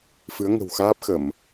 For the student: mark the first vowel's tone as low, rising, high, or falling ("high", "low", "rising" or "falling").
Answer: rising